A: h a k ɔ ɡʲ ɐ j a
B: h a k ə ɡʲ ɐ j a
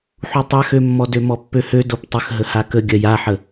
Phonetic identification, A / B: B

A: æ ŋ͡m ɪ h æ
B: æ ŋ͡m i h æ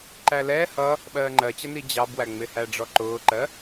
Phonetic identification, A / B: A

